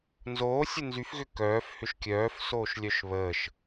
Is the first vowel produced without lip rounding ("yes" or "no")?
no